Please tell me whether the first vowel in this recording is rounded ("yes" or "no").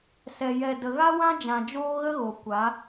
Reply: no